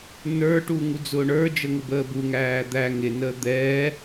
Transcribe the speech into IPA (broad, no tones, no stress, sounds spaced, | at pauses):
n ə˞ ʈ u ŋ u d͡z ʊː ɳ ə˞ d͡ʒ ə ŋ ʊ b əː b u ŋ æː d̪ æ ŋ ɪ n əː d̪ ɛː